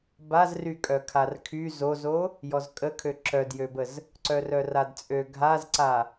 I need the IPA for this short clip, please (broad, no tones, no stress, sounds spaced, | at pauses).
b a z r y kʼ œ kʰ a r kʰ y z o z o | j ɔ z kʼ ə kʰ ø ǁ œ d j ø b ə z | ǀ œ r œ r a d t͡sʼ ø ɡʱ a z ǀ a